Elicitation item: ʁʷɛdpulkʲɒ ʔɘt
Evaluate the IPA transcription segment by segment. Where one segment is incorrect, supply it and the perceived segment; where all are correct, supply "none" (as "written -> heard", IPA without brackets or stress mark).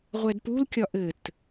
none